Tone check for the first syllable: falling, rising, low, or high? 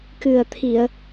low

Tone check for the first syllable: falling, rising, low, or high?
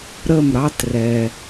falling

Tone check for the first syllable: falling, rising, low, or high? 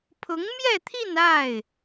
rising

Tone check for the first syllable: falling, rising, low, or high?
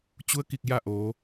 rising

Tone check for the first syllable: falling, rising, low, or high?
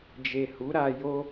low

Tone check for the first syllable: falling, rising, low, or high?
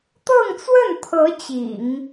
falling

